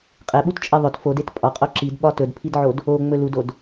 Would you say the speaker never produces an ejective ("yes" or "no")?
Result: no